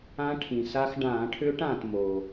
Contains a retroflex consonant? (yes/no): yes